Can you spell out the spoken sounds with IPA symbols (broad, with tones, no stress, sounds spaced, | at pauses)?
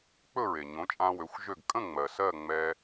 k͡p ɵ˥˩ ɹ e˩ ɲ õ˩˥ t͡ʃʼ ã˧ w ø˩˥ xʷ ʒ ø˥˩ ɡ kʼ ə̃˥˩ ŋ͡m ɜ˩ s ɜ˥˩ ŋ͡m ɛ˧